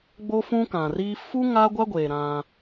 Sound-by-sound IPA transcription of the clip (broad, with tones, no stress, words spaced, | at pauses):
ɡ͡bo˦fũ˦kã˨riː˦ fu˦ ŋa˦ɡʷa˦ɡʷeː˨ ɾã˦